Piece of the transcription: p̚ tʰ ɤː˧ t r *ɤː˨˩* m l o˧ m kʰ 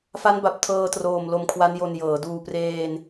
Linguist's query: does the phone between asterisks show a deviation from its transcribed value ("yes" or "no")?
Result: yes